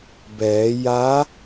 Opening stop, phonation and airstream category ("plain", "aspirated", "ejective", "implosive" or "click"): plain